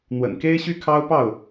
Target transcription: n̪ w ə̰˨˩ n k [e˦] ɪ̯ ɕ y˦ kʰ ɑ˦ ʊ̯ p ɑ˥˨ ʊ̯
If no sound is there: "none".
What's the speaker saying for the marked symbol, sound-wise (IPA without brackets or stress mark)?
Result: e˦